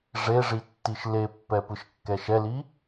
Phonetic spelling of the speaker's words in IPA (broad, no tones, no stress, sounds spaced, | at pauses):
ʐ e ʐ i tː i ʃ l e pː ɛ p ɯ ʃ kː ɛ ʃ ɛ l i